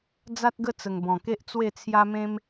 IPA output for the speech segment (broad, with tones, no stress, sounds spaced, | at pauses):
d͡z a˦ t̚ ɡ ə˦ t͡s ə˨˩ ŋ b ɔ̃˨˩ k e˦ ʔ t͡s w e˥˧ t͡sʰ j a˦ m ẽ˦ m